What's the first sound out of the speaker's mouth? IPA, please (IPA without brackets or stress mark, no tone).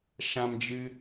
ʃ